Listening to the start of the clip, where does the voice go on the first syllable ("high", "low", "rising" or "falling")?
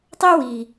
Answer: high